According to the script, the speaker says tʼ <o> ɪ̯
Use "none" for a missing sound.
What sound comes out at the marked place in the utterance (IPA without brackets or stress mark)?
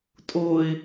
o